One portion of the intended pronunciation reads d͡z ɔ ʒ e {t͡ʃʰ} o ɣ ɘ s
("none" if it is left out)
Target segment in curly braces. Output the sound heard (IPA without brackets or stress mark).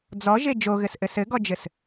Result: d͡ʒ